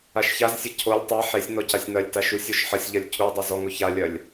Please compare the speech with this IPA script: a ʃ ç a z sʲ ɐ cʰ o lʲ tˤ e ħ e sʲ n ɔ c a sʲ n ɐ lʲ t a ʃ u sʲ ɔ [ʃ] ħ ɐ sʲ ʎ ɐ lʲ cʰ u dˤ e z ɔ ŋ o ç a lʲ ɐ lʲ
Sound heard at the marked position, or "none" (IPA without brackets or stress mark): ʃ